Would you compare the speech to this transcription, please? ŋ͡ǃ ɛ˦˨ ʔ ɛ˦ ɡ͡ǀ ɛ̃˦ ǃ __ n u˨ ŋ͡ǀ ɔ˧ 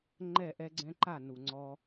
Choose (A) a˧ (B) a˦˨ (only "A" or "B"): B